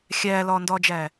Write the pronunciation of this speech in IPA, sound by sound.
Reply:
xʲ æː l ɒː n d ɒː d͡ʒ æ

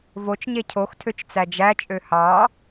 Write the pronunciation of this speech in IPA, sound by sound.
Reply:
v o t͡ʃ ɲ e cʰ o x tʰ ø t͡ʃ t͡s æ d͡ʒ æ t͡ʃʼ ø h ɑ

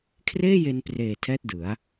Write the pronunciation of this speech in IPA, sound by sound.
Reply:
kʰ r eː˥˩ j e˧ n p r eː˨˩ tʰ ɛː˥˩ t̚ d ɯ˩˦ a̯

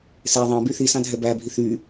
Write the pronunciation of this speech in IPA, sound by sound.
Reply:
s e ðˤ ɑ̃ b y θ i s ɑ̃ dʱ ɛ b æ bʱ i θ y

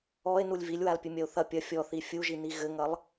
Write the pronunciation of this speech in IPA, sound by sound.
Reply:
ɔ e̯ n u lʲ v i lʲ w a l pʲ ɨ mʲ ɐ o̯ θ ɐ pʲ ɐ fʲ ɔ θ i fʲ u ʒ i n i ɣ ɘ ŋ ɐ lˠ

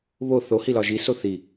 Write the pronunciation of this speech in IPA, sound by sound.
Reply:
β o θ o h i l ɒ ʒ i s o θ i

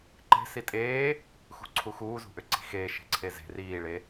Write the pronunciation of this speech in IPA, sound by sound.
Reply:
ǃ e̤ s i tʼ eː | x ṳ ǀʰ u x uː z ṳ ʔ ʏ ǀ i̤ x eː ʃ e̤ ǀʰ e z e̤ r iː ɭ e

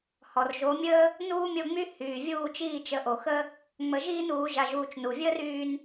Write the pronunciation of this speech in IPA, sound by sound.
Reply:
h ɔ˩ r ʒ o˩˥ mʲ əː˥ | n uː˥ mʲ o˥˩ ŋ͡m y˥ h yː˩ vʲ uː˥˩ t͡ʃ iː˥˩ t͡ʃ ə˩˥ ʔ o˩ x ə˥ | ŋ͡m ə˧ ʒ iː˥ n uː˩˥ ʒ a˧ ʒ uː˥˩ t͡ʃ n u˩ vʲ əː˥ r yː˧ n

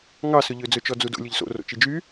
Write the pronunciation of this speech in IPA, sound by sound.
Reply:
ŋ ɑ s ɵ ʎ ø d͡z ɵ t͡ʃ ɔ d͡z u d o̰ lʲ ɵ ʎ s o̰ r o̰ t͡ʃ i d͡ʒ y

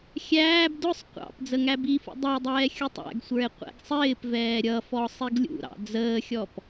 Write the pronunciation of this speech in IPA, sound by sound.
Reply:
xʲ æː b d ʊ sˤ qʷ ɑ̰ p d͡z ə ŋ æ b i f ṵ dˤ ʌ e̯ dˤ ɛː xʲ u tˤ æ̰ ɡ sʷ ə˞ e̯ qʷ ɛ̰ ɡ sˤ ɪː p v ɛː ɾʲ ʌ f ɔ sˤ i ɡ lʲ ṵ ɾ ɑ̰ d͡z əː xʲ ɔ p

